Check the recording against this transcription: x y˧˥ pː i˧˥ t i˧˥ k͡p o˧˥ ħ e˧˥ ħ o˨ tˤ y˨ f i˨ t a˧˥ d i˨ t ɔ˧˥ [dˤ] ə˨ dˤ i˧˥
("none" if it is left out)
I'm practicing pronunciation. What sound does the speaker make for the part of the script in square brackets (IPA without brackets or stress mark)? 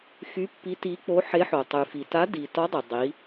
dˤ